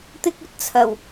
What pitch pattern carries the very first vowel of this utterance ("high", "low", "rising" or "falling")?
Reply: high